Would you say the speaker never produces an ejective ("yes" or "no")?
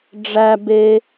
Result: yes